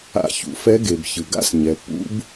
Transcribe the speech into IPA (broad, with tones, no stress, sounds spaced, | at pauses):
a̰˧ ç ṵ˩ f ɛ˧˥ ɡ e˩ b ç ɯ˩ ɡ a̰˥ s ɲ ɛ˩ pː ṵ˧˥ b